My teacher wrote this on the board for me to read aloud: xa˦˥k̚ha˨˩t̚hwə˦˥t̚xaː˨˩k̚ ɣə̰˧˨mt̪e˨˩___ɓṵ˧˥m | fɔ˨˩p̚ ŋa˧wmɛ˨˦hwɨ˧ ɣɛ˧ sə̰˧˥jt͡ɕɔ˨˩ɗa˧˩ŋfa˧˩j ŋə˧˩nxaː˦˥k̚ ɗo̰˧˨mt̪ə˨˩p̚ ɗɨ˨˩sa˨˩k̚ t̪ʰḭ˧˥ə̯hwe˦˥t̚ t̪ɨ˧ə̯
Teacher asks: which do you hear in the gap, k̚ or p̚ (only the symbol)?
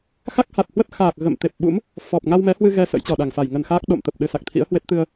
p̚